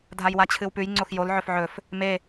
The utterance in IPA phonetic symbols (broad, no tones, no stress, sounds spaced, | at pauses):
dʱ a j w a t͡ɕʰ ɨ w p ʉ j ŋ͡ǀ o x j o l ʕ ɵ f ʕ ɵ f | m e